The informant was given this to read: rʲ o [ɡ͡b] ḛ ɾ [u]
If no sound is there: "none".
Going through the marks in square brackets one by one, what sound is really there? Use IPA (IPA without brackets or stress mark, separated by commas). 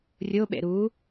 ɓ, u